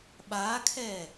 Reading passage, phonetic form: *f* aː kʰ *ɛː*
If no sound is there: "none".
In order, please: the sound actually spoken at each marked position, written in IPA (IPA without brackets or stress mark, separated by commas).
ɓ, ɛː